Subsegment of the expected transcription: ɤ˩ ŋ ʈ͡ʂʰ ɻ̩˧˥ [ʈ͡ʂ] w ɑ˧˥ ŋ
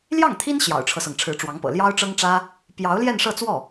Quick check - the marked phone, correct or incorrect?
correct